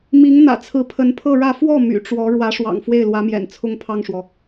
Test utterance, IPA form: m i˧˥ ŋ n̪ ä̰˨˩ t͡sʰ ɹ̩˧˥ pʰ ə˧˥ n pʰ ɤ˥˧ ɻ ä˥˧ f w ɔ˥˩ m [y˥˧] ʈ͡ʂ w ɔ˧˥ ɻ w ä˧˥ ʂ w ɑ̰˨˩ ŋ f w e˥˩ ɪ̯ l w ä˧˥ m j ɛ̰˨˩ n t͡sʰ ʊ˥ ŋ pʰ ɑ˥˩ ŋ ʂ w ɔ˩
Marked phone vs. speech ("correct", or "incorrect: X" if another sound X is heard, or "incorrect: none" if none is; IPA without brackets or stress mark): incorrect: y̰˨˩